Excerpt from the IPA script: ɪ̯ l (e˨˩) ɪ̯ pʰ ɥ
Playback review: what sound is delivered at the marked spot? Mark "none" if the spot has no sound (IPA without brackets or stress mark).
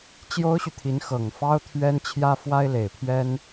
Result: e˨˩